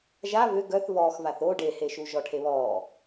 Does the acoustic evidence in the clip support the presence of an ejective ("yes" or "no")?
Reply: no